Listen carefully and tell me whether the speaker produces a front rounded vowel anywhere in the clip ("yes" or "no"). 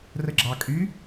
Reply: yes